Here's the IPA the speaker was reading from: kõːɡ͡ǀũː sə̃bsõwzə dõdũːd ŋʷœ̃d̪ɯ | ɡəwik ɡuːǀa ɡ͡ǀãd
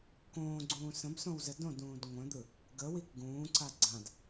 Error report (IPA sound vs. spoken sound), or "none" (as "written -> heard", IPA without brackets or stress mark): uː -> ũː